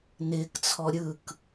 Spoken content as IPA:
n ɪː k t͡sʰ ɔ ɾʲ ɯ k

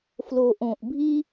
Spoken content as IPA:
f l o˨ ʔ õ˨ ʔ bʱ i˦

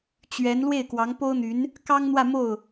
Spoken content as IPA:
t͡ɕ ɥ ɛ˧˥ n l w e˥˩ ɪ̯ k w ɑ˧˥ ŋ p o˥ ʊ̯ n̪ y˧˥ n | k ɑ˥ ŋ n̪ w ä˥˧ m o˥˩ ʊ̯

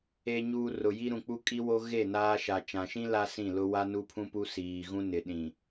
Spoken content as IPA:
e˨ ɲ uː˨ r ʊ˨ j i˦ ɾ ũ˨ k͡p u˦ kʼ i˦ w o˦ ɣ e˦˨ n aː˦ ʃ a˨ t͡ʃ ã˨ ʃ ĩ˦ l a˦ s ĩ˦˨ l ʊ˦ w a˦ n u˦ pʰ ũ˦ p u˦ s iː˨ ɣ ũ˦ n ɪ˨ ɗ ĩ˨

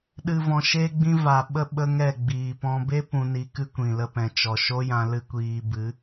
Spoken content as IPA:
ɗ ɨ˨ v ɔ̃˨ ʃ e˧ ɡ͡b ĩ˧ v a˨ ɓ ə˦ ɓ ə˦ ŋ ɛ˦˨ ɡ͡b iː˨ p ɔ̃˦ b e˦ p ũ˧ n i˧ k ɨ˦ kʷ ĩ˨ l ə˧ p ɛ̃˨ t͡ʃ ɔ˨ ʃ o˦ j ã˧ l ɨ˦ kʷ iː˧ b ɨ˨˦

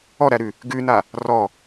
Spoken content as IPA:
ɔ ɾ æ ɾ ʉ | ɡ ʉ n a | r ɔ

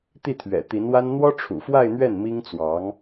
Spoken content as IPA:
t̪ i˥˩ t̪ʰ ɥ ɛ̰˨˩ t̪ i˧˥ n w a˥ n n̪ w ɔ˥ ʈ͡ʂʰ ṵ˨˩ f w a˥˧ ɪ̯ n̪ ɥ ɛ˥˩ n m i˥ ŋ t͡s w ɑ˧˥ ŋ

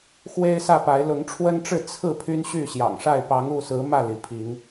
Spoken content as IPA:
x w e˦ ɪ̯ s ä˥˨ p a˨˦ ɪ̯ l ʊ˨˦ ŋ ʈ͡ʂʰ w ə˦ n ʈ͡ʂ ɻ̩˥˨ t͡sʰ ɹ̩˥˨ pʰ y˦ n ɕ y˥˨ ɕ j ɑ̰˨˩ ŋ ʂ a˥˨ ɪ̯ p ɑ˨˦ ŋ u˥˨ s ɹ̩˨˦ m ä˥˨ l i˩ pʰ i˨˦ ŋ

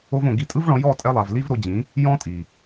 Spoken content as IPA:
o˦ v õ˧ ɡ i˧ tʼ ɯ˦ v ɭ ɔ̃˧ j ɔ˦˨ tʼ ɛ˧ lˠ a˨ v l i˦ v ɾ o˧ d͡ʑ ĩ˨˦ | j ɔ̃˦ tʼ i˨

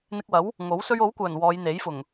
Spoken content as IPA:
n̪ ɪ˧ k̚ w ɐ˨˥ w | ŋ o˨˥ w s ɵ˧ ɥ o˨˥ w kʷ œː˨˩ n w ɔː˨˧ j n̪ e˨˥ j f ʊ˨˩ ŋ

